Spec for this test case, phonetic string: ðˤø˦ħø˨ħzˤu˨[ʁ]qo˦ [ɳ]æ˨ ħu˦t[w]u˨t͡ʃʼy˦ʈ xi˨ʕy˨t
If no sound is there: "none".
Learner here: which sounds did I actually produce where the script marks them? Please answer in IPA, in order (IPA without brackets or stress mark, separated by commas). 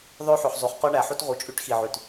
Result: χ, ɳ, ʁ